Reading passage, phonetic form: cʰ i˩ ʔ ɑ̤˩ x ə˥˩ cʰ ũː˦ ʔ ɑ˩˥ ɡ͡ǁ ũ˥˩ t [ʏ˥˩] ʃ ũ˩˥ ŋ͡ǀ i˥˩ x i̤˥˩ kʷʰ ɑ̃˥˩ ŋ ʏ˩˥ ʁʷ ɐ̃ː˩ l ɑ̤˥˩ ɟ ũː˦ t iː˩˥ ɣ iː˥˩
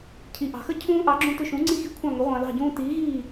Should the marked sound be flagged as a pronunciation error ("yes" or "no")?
no